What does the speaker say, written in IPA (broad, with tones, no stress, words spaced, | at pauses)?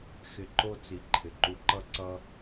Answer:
xɪ˧ǃo˦t͡si˨ ǃʰɪ˨ǃu˧ǃʌ˦ ǀʌ˦